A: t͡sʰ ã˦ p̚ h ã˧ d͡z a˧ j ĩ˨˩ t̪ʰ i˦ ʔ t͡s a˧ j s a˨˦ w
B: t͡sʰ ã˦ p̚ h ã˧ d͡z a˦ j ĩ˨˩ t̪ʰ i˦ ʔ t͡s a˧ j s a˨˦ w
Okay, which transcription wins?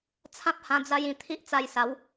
A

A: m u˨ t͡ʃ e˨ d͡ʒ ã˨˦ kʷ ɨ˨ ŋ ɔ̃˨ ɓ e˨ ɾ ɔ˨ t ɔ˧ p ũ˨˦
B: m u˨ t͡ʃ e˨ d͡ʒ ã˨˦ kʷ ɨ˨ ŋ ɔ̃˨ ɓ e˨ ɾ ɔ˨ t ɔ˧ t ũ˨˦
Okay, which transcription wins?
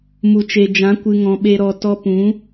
A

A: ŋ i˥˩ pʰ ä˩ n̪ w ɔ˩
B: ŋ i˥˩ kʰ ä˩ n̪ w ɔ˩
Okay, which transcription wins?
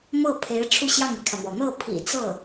B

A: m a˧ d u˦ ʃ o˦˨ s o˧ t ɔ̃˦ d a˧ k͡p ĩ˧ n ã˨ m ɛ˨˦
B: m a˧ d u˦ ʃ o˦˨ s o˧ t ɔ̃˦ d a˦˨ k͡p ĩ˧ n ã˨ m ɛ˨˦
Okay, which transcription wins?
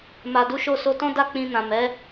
B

